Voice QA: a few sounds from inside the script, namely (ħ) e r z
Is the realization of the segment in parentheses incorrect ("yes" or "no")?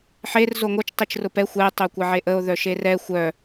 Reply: no